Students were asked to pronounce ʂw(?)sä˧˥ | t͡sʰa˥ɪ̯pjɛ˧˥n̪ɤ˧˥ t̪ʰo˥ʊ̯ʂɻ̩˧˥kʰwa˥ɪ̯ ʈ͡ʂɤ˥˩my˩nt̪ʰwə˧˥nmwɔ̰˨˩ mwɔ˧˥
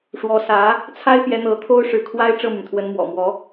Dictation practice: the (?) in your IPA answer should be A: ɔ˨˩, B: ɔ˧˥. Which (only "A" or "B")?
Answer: B